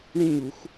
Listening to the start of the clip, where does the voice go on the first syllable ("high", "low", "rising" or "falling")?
falling